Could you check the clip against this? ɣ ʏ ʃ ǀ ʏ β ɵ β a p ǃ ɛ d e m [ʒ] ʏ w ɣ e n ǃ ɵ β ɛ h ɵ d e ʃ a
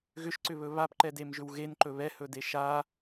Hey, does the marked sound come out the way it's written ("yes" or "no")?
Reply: yes